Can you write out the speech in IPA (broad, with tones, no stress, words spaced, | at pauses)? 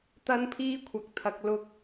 t̪ɐ˥npʰiː˥kʷʰɐ˨k̚t̪ʰɐ˨k̚ lʊ˧k̚